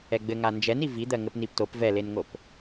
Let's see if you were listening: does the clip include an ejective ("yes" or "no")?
no